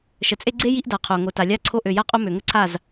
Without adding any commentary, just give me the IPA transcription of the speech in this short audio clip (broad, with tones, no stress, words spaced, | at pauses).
ʃə˨t͡sʼe˦ ɡ͡ǀe˦ ji˦ʔda˨qʰo˨ ŋo˨ta˨lʲa˦˨ǀʰo˦ ʔø˨ja˦qʼo˦ mø˨ŋə˦ǀʰa˦˨z